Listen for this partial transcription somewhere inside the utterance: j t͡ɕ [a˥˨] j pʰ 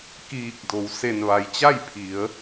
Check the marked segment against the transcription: correct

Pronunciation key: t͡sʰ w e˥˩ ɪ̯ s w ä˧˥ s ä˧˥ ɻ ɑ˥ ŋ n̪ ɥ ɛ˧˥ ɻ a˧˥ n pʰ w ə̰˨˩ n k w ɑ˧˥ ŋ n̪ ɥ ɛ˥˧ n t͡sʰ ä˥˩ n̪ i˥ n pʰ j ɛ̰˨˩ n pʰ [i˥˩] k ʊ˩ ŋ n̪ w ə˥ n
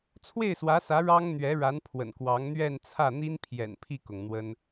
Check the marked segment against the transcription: correct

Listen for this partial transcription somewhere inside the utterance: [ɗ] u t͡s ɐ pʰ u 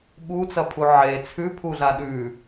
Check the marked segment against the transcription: incorrect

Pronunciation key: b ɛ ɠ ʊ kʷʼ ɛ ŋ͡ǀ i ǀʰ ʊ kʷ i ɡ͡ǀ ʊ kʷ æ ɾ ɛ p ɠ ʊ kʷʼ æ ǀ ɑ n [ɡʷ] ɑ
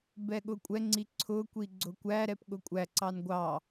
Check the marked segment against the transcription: correct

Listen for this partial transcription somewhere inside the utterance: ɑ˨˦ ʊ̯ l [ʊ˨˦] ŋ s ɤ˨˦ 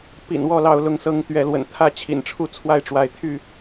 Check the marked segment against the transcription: correct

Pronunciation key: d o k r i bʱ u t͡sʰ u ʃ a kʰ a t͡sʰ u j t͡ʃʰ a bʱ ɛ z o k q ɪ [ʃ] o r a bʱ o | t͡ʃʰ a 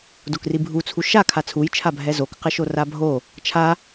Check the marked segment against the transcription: correct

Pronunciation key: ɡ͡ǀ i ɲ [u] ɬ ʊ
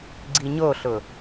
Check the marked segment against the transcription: incorrect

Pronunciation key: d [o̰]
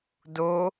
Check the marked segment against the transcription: incorrect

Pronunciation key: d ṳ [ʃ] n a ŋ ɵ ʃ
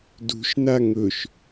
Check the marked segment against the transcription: correct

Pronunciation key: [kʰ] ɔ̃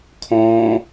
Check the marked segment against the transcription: correct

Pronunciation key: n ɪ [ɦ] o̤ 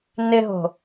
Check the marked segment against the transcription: correct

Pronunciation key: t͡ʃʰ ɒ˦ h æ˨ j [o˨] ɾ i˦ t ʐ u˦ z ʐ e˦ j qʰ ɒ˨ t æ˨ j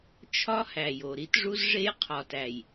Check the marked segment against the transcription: correct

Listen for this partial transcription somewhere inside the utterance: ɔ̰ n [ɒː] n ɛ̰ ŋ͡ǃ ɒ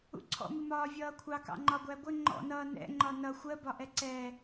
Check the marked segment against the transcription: incorrect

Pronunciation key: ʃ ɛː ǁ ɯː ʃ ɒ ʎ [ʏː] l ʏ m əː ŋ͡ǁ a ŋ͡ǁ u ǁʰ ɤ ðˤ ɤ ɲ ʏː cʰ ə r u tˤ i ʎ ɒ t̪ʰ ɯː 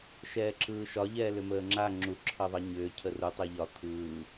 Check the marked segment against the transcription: incorrect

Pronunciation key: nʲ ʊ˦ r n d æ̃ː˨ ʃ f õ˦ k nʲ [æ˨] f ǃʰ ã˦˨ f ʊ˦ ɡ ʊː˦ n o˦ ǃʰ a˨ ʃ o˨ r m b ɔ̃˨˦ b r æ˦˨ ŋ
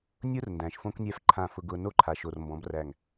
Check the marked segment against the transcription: incorrect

